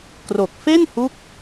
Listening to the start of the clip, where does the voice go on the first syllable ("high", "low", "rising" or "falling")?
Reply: low